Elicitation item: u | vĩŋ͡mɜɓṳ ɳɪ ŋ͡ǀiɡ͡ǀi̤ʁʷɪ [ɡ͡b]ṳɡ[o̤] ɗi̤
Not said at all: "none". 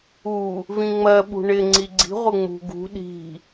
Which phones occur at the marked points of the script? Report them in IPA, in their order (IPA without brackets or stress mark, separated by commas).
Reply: ŋ͡m, ṳ